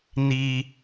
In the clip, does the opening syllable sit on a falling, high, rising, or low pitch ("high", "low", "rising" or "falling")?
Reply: high